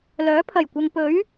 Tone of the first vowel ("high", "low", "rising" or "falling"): rising